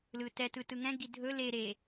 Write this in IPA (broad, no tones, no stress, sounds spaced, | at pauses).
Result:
l ɯ t ɛ t ɯ t ɯ ŋ ɛ̃ ɡ i dʱ ɵ l e ɾ e